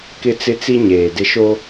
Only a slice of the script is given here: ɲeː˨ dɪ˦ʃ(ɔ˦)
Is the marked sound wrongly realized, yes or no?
yes